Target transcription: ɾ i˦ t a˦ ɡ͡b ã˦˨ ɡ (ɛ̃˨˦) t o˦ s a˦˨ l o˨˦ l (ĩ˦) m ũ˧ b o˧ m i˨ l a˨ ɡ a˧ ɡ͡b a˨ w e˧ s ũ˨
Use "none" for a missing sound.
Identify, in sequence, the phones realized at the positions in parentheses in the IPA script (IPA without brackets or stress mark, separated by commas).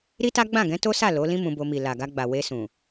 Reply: ɛ̃˨˦, ĩ˦